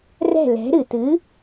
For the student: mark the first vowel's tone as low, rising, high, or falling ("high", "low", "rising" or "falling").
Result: falling